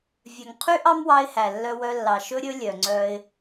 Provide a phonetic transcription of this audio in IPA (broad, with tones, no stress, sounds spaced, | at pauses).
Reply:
vʲ œ˨ ŋ qʰ y˦ ʔ ɑ˦ m w ɑ˧ ɪ̯ h æ˨ lː œ˧ w œ˧ lː ɑ˨ ʃ ɵ˦ ɾʲ ɵ˦ lʲ œ˨ ŋ͡ǀ œ˧ ɪ̯